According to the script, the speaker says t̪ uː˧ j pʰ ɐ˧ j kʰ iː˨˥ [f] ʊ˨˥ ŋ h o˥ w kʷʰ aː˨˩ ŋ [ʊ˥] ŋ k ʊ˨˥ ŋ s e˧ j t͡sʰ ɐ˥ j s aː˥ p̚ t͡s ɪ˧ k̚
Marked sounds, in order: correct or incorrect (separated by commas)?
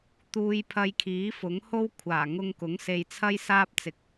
correct, incorrect